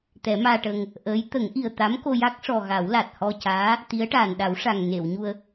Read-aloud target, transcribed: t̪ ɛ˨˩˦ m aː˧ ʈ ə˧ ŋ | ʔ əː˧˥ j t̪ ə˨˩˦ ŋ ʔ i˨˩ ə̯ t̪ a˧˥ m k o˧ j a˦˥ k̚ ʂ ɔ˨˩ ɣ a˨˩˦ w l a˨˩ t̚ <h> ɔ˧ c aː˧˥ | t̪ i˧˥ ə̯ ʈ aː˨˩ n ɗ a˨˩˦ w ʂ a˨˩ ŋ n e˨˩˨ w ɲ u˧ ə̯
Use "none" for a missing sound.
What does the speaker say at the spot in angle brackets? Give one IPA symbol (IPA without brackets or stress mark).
h